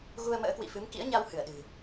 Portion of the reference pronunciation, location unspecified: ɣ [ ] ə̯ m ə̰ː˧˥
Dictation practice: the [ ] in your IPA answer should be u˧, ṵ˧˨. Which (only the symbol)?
u˧